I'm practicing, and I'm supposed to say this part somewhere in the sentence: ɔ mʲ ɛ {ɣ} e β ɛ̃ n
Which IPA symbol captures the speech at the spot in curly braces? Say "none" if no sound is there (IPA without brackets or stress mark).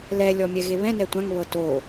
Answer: ɣ